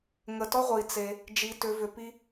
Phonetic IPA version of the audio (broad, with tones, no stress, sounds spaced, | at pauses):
ŋ ə˨ t ɔ˦ ʁʷ i˨ t͡s e˨ | d͡ʒ i˨ t ʏ˨ v ʏ˨ p i˦